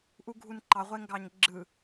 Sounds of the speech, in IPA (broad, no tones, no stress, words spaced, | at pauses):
ʔuɡʱunǃɑ ʁʷeŋɡɑɲɡ͡ǁɯ